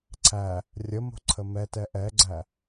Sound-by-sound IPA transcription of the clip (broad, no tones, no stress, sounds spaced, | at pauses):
ǀʰ æ | rʲ ə m o̤ ǀʰ ə m ɛ t ɛ ʔ ɛ ɡ͡ǀ æ